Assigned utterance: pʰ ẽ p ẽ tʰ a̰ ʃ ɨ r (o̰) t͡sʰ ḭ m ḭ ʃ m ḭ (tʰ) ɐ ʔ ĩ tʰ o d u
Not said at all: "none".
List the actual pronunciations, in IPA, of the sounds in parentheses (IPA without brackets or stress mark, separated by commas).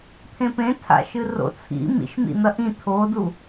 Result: o̰, n̪